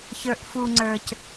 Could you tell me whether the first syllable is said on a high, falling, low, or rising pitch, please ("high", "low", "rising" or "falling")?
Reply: low